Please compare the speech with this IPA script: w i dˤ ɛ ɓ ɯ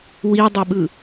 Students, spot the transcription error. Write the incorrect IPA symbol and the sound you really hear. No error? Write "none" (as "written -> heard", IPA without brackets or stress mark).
none